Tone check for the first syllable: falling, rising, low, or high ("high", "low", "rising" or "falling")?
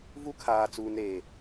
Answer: high